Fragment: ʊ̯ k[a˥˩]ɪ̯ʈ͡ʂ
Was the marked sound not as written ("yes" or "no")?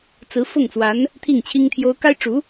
yes